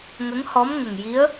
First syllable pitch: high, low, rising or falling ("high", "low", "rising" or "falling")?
rising